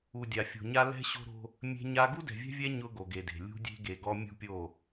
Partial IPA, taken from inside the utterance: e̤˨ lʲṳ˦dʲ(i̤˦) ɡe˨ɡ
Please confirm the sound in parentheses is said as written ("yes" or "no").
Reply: no